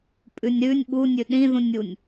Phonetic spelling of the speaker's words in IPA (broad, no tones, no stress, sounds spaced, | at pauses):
pʼ ʉ nʲ ɾ ʉ nʲ ɓ u nʲ ʉ ɗ ĩ ð ũ nʲ u nʲ